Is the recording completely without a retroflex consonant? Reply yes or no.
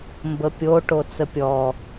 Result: no